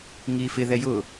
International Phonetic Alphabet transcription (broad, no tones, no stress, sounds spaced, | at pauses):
ŋ iː f ɪ ð ɛ j ʊː